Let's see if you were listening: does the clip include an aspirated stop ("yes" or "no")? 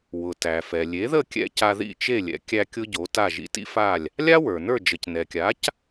no